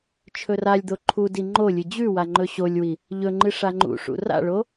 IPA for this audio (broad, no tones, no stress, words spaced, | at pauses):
t͡ʃʰɵralʲd̪o ǃʰudi ŋ͡ǃolʲɨ d͡ʑʉwa ŋ͡ǃɵɕolʲwi | ʎɵŋ͡ǃɨ ʂaŋ͡ǃṵʂṵ ra̰ɭo